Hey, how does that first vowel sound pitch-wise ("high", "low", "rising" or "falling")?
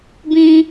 high